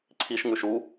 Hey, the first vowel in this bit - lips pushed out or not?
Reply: no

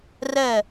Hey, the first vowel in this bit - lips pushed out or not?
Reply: no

